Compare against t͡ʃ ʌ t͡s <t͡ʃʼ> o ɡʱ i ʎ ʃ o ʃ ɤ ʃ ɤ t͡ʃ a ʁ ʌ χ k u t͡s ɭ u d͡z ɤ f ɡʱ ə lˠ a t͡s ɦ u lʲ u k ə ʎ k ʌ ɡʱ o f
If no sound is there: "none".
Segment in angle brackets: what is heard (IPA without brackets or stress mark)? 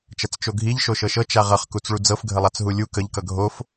t͡ʃ